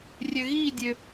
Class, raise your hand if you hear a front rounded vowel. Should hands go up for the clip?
yes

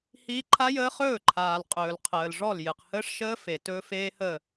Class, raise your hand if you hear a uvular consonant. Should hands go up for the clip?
yes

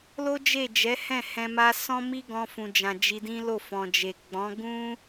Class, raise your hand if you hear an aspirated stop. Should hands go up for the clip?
no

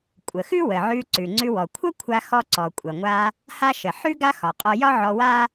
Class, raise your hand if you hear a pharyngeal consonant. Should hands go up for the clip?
yes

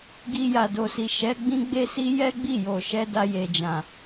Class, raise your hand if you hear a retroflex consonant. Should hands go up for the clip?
no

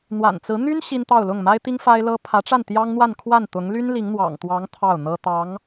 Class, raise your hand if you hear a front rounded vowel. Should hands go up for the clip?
yes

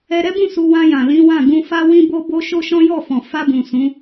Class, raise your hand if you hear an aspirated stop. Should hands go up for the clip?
no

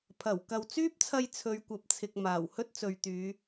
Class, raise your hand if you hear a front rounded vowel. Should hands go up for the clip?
yes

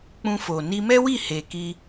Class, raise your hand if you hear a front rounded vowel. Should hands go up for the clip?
no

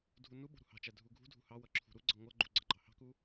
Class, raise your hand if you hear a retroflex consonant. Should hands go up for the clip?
no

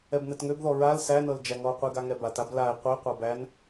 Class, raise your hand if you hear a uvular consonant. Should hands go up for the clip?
yes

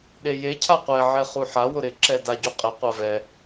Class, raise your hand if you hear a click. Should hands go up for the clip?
yes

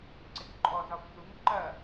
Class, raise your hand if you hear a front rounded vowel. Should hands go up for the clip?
no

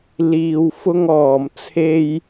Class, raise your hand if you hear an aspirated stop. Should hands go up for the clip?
yes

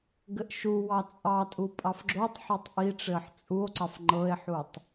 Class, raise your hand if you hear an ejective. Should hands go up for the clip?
yes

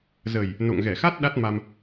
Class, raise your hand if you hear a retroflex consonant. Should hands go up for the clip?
no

